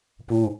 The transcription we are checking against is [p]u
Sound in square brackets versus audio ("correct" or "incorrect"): correct